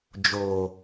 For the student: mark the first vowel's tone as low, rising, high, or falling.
low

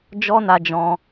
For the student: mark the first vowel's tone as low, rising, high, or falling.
high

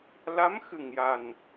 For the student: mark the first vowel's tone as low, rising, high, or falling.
rising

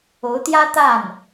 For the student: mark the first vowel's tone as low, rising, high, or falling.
rising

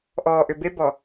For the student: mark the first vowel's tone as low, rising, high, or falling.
low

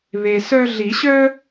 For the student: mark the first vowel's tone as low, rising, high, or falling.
low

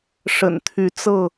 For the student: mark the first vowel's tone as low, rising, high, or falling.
low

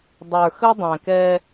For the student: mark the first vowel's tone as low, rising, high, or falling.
low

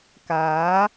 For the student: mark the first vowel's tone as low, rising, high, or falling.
rising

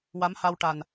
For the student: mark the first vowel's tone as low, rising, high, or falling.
rising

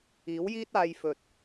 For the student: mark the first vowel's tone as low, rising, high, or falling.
rising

